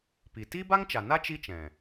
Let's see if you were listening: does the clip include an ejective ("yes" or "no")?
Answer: no